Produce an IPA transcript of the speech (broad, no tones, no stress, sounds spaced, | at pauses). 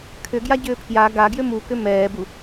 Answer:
kʰ ʏ ɡ j a ɟ ʏː pʰ j a ɡ a ɡ j ʏ m u k ʏ m ɛː b u